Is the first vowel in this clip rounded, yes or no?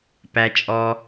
no